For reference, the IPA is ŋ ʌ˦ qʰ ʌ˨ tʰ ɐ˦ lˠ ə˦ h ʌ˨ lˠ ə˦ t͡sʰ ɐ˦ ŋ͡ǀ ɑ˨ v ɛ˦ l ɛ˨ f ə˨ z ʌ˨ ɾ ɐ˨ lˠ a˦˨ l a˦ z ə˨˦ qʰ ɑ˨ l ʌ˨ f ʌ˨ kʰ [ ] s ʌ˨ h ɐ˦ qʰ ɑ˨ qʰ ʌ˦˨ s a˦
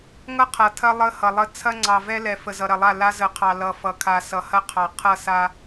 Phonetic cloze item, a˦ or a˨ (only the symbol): a˨